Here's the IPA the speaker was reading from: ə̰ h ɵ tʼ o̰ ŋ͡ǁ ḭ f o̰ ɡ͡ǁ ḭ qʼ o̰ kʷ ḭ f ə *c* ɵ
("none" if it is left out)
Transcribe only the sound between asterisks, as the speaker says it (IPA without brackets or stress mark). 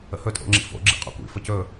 c